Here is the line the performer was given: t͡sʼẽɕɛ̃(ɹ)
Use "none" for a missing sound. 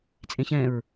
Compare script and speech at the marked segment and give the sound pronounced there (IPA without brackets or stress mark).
ɹ